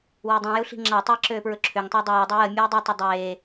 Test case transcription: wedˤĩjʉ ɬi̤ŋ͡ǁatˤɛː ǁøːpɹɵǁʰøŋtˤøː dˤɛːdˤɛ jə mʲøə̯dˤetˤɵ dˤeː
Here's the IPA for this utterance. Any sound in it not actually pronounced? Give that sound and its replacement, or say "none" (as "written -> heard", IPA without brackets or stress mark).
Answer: ʉ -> u